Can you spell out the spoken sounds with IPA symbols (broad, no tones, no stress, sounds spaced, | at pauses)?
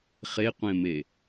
χ e qʷ ẽ m e